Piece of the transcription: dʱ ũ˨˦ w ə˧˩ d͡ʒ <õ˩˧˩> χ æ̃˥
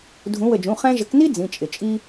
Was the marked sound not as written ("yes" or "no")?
yes